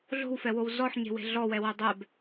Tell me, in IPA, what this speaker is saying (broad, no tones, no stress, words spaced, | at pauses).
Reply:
ɮo̤wfɛwow zɔħɲe̤we̤ ɮɔwɛwɛ dˤɛb